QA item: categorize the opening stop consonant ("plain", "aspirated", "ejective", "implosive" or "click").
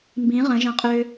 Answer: plain